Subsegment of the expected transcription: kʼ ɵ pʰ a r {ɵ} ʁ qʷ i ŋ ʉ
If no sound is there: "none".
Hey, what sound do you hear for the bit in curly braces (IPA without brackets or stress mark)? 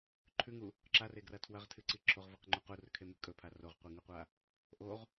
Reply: o